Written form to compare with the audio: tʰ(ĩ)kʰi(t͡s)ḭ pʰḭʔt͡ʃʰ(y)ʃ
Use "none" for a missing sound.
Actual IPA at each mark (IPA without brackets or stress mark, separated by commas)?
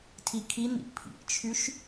i, n̪, y